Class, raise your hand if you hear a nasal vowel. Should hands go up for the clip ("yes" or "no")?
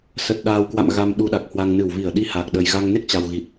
no